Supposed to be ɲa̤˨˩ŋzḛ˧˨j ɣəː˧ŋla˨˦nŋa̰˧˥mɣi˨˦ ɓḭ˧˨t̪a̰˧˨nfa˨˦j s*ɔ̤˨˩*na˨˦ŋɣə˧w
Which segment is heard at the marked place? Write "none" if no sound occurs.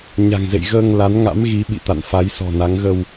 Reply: ɔ̤˨˩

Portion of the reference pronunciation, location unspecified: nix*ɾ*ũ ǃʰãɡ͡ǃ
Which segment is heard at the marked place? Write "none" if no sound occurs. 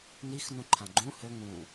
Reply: n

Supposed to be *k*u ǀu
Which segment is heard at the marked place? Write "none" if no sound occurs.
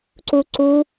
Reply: ǀ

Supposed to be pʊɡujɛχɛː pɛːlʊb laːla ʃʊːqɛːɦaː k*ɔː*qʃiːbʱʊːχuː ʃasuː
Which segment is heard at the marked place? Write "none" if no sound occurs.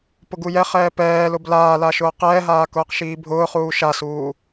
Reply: ʊː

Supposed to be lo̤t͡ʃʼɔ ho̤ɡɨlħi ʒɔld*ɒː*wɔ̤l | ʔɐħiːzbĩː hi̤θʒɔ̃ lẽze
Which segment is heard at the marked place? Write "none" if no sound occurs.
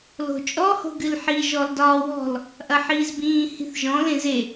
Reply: ɒː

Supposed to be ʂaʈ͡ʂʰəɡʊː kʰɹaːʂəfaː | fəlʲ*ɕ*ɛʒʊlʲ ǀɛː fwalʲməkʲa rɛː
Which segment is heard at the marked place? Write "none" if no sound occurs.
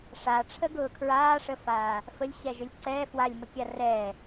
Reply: ɕ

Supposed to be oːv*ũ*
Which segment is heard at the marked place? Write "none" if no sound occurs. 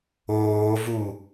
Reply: u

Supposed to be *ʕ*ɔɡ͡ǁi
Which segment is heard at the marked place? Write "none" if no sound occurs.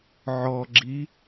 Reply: ʕ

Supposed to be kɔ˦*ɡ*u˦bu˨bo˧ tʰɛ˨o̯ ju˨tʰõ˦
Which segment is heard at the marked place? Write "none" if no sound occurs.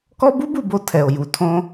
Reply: b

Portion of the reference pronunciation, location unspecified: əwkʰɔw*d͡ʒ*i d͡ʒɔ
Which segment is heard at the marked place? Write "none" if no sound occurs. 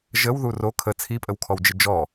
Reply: d͡ʒ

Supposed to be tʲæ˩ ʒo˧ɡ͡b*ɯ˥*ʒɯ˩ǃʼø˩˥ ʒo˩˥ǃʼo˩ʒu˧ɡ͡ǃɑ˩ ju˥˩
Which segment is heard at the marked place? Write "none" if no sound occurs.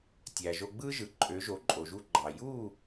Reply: ɯ˥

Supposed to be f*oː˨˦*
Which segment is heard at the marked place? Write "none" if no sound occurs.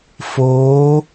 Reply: oː˨˦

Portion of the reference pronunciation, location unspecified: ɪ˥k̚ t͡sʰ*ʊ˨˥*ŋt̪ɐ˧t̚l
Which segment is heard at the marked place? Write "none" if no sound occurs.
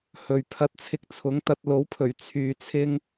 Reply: ʊ˨˥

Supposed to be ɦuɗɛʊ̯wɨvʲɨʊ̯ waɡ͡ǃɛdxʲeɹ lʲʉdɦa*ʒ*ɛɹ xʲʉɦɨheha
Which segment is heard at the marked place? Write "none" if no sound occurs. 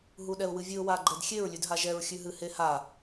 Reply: ʒ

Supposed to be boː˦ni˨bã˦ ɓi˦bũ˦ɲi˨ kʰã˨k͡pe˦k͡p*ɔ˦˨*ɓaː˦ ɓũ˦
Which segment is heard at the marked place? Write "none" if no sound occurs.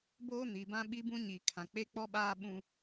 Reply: ɔ˦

